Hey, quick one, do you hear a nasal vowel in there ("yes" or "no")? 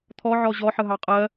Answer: no